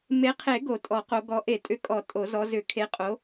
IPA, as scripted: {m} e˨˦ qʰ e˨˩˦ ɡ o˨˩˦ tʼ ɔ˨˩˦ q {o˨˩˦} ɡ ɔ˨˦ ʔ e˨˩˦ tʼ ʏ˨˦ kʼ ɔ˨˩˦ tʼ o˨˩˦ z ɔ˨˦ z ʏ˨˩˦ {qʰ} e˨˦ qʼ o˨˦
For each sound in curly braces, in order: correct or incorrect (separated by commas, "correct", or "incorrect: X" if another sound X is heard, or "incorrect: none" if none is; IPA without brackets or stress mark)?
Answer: correct, incorrect: o˨˦, incorrect: kʰ